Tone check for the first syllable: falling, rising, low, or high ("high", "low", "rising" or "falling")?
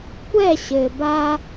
falling